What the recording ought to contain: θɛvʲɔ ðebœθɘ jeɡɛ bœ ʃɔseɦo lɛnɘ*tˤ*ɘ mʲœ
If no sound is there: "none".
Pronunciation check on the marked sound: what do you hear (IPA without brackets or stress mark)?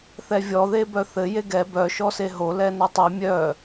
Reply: tˤ